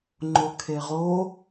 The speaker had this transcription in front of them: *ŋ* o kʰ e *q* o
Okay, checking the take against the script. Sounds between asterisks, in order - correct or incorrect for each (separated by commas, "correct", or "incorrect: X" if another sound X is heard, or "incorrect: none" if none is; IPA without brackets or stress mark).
incorrect: ŋ͡ǃ, incorrect: ʁ